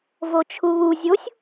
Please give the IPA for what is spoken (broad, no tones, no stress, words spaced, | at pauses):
vot͡ʃʰuβu zʲosʲ